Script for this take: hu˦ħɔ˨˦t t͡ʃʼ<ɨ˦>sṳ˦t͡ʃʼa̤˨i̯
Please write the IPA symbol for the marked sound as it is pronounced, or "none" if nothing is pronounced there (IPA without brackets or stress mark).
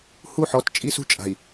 i˦